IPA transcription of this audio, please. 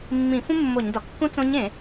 mː ĩ˧˩˧ f ũ˥ mː o˧˩˧ ɲ d ɒ˩ kː ũ˥ t͡s õ˧˥ ɲ ẽ˧˩˧

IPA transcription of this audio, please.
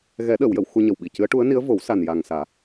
ɣ ɛ˨˩˦ ɗ əː˨˩˨ w j ə˨˩˨ w x u˧ ɲ ə˨˩ w ɓ i˨˩ c ɨ˧˥ ə̯ ʈ u˧˥ ə̯ n i˧˥ ə̯ v o˨˩˦ w s a˨˩ n j aː˨˩ ŋ s aː˨˩˦

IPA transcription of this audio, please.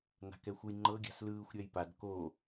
n a̤ k ɛ xʷ ɯ j ŋ͡ǃ ɤ ɡʲ a̤ s l ɯː xʷ ɾʲ ɛ j p a d k o

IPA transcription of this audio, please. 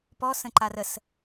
p ɔ s ə̃ ǃ a r ə s

